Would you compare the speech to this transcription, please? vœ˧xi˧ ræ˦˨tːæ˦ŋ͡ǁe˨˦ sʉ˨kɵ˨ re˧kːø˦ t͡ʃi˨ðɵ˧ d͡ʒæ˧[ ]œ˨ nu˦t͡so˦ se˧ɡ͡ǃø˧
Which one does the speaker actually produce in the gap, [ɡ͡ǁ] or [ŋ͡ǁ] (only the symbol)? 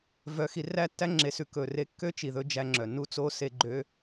ŋ͡ǁ